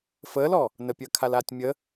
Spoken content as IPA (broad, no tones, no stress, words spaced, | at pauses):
fəːlɔ | nəpʲəːkʰalaːtʲ mʲə